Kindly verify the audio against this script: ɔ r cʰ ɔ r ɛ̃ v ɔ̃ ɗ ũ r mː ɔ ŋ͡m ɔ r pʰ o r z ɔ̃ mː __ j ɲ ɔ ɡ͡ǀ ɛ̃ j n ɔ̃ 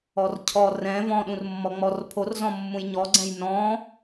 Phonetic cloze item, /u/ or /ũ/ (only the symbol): ũ